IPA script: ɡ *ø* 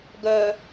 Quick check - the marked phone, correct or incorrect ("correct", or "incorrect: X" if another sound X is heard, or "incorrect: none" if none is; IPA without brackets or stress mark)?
incorrect: œ